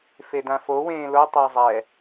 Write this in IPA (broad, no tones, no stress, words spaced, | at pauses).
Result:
fedãfo wẽːlo tˤazˤɛ